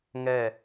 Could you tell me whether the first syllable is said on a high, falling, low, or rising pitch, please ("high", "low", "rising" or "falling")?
falling